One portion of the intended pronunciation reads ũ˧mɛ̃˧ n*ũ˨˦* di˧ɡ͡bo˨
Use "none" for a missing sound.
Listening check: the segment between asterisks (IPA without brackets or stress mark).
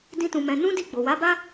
ũ˦